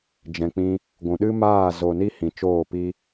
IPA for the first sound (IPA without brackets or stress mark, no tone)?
d͡ʒ